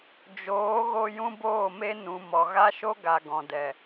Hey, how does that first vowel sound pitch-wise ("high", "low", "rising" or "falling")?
rising